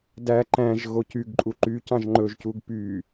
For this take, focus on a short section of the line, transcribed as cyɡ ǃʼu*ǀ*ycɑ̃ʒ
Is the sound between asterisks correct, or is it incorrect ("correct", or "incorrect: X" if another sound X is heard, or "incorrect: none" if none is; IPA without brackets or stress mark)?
incorrect: ǃ